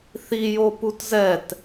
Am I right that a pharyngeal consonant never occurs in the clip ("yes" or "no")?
yes